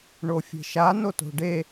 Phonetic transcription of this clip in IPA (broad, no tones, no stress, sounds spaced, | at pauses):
ɳ o fʲ e̤ ʃ a n o t o̤ ɖ e